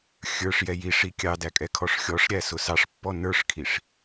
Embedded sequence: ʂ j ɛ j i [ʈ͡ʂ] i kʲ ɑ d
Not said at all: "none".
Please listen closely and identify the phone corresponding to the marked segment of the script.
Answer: ʂ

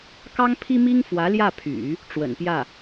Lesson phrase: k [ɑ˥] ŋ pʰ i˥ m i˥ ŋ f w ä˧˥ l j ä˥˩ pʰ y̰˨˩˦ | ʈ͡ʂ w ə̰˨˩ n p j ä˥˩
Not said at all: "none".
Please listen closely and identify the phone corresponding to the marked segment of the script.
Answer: ɑ˥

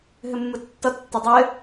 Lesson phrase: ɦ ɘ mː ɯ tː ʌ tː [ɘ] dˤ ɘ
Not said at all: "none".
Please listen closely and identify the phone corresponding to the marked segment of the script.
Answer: ɛ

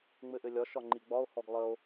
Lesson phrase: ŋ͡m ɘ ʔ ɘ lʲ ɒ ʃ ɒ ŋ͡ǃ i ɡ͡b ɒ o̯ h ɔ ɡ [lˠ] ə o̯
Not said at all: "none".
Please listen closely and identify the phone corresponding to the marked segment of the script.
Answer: lˠ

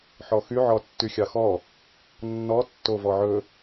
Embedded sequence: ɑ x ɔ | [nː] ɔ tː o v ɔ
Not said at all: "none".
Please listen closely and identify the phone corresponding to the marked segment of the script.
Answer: nː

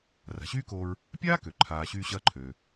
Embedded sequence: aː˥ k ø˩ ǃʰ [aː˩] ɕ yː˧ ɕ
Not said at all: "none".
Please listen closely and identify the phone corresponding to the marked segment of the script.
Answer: aː˩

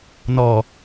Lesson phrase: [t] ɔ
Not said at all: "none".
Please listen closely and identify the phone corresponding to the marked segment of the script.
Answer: n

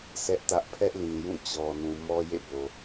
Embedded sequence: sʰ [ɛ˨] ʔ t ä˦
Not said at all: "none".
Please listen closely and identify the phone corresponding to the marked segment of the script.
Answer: ɛ˦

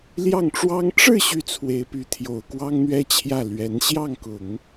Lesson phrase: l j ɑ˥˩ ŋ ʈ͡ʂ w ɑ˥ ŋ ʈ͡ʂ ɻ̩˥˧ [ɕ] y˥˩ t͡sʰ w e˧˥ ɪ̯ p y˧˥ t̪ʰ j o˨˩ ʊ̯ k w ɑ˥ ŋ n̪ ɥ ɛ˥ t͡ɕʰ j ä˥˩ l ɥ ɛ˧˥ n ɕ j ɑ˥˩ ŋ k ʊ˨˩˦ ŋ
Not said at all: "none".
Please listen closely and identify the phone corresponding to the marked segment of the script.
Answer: ɕ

